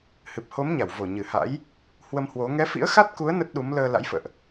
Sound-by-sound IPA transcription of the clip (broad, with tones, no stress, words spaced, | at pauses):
hɨ˨˩p̚ho˨˦m ɲa˧˩wvo˧˩ ɲɨ˧˩ha̰˧˥j | hwə˧mhwo˨˦ ŋɛ˨˦fḭ˧˥ə̯xa˦˥t̚ku˨˦ə̯ nə˦˥t̚ɗu˨˦m ləː˧ la̰˧˥jfə̰ː˧˨ʔ